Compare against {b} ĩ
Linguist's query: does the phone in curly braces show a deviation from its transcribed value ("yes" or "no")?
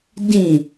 yes